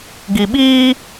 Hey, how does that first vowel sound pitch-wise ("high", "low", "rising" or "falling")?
low